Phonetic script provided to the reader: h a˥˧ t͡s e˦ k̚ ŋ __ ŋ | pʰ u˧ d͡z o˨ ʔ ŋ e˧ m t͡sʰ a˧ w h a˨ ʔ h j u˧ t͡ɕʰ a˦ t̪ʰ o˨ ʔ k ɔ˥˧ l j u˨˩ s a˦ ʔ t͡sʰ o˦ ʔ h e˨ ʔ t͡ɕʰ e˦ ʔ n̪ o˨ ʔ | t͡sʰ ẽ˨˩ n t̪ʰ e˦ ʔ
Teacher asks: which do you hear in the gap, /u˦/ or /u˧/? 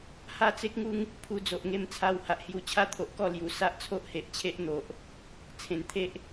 u˦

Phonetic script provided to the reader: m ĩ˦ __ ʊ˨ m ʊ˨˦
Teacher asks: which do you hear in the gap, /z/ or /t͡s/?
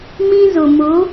z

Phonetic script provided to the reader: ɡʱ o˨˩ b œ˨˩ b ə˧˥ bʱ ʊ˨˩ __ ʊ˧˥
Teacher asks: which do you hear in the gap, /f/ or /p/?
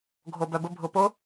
p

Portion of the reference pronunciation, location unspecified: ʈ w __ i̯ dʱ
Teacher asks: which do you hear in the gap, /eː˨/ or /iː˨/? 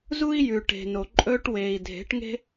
eː˨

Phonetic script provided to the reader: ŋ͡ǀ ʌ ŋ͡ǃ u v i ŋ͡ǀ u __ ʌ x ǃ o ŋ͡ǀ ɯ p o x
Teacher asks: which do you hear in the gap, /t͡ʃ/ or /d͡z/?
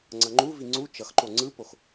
t͡ʃ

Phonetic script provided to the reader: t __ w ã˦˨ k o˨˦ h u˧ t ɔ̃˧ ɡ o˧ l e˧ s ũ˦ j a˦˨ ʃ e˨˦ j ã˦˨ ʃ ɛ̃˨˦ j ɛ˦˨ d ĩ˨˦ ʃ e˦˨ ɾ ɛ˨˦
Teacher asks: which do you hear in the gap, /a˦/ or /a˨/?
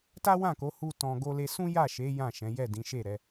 a˦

